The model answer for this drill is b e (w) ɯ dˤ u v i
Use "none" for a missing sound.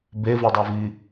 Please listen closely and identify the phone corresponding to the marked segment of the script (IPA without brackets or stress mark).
v